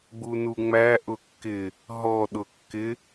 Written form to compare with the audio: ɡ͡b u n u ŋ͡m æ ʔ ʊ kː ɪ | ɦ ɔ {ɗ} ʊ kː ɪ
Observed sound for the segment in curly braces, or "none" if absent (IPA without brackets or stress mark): ɗ